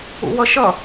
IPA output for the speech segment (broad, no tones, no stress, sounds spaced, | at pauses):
ṵ w ʌ ʃ ʌ